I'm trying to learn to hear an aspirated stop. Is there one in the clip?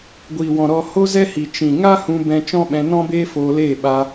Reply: no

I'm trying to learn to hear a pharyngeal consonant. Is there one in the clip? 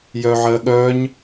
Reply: yes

